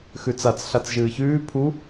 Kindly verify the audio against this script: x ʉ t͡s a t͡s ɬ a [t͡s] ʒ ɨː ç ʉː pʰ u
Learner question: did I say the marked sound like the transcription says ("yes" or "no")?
yes